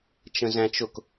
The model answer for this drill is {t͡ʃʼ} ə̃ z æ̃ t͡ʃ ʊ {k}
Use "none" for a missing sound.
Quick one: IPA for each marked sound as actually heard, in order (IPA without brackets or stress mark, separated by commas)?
t͡ʃ, k